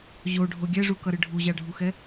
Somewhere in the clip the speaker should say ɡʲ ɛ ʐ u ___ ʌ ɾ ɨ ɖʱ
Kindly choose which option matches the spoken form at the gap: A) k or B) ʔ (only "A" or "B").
A